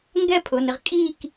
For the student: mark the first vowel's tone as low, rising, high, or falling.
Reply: falling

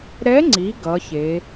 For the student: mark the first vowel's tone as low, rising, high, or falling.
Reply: rising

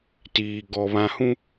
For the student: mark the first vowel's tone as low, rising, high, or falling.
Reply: low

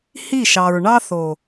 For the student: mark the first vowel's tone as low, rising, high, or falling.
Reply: falling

